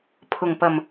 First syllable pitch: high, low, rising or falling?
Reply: low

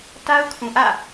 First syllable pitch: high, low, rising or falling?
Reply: high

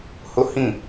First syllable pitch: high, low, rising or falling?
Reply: high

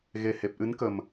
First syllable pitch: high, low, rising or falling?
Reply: low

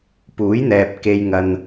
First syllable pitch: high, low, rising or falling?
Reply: rising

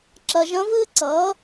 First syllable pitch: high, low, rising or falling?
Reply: low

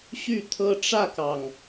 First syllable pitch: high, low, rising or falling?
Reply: falling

